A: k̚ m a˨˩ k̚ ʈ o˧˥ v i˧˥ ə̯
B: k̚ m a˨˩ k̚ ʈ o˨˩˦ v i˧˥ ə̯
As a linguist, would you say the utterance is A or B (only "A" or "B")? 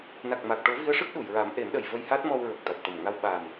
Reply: B